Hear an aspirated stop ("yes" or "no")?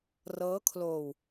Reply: yes